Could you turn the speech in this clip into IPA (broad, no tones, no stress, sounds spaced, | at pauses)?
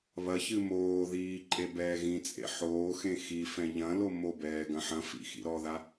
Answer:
β ɐ ç ɨ m oː ð iː ǃʼ e b ɛː ɣ ĩ t͡sʼ ḛ ħ oː x ẽ x i f ɛ̃ ʎ ɐ̃ l o m o b ɛː ɡ ɐ̃ ħ ɐ̃ f ḭ x ḭ ɾ ɔ ð a